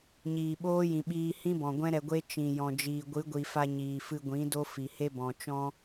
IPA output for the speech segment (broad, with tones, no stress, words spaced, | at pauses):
ɲiː˨ɓoː˦jĩ˨ɓiː˧ hĩ˦bɔ̃˨ ɡʷɛ̃˦ɾɛ˧ɡʷe˦ t͡ʃĩ˨ jɔ̃˨d͡ʒiː˨ ɡʷɨ˨˦ɡʷi˨fa˧ ɲiː˨fɨ˧ɡʷĩ˨˦do˦ fi˨ he˦bɔ̃˨t͡ʃɔ̃˦